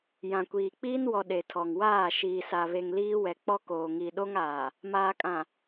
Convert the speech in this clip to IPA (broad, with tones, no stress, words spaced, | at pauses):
jã˨kʷiː˨k͡piː˦nwɔ˨ ɗe˨tʰɔ˨ŋwaː˦˨ ʃiː˨sa˨βe˨ŋ liː˦wɛ˨k͡pɔ˦ koː˨ŋi˨ ɗo˦ŋaː˨ | maː˨kʼã˨